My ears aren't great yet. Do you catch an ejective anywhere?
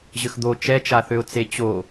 no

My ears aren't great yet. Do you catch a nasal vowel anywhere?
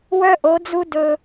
no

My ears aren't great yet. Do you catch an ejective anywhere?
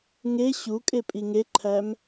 yes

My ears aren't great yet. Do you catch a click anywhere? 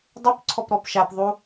yes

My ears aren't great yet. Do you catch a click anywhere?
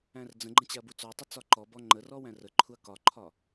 yes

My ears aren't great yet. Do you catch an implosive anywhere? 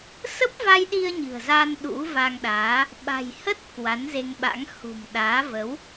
yes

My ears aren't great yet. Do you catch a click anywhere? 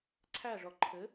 yes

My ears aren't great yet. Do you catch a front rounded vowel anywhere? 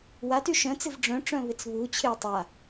yes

